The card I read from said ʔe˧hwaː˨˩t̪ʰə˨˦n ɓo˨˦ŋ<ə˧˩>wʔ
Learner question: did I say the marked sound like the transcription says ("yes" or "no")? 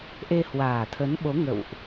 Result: no